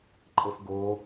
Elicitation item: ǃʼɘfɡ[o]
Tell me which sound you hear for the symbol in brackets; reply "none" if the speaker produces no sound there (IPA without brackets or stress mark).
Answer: o